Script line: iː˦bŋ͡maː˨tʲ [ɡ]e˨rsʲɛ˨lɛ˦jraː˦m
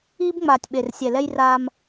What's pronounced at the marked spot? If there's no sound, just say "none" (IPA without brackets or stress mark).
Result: ɓ